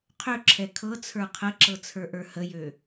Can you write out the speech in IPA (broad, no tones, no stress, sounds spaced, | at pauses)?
qʰ ø ǁʰ ɛ kʰ ɤ t͡sʰ ə˞ qʰ ə ǁ ɤ t͡sʰ ə˞ ʔ ə˞ h ə j ø